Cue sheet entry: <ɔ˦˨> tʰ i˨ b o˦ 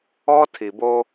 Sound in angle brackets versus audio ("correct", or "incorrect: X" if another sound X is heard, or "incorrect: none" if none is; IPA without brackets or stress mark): incorrect: ɔ˦